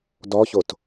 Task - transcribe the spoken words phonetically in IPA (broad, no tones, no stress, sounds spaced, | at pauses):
d ɔ ç o t